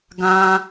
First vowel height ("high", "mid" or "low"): low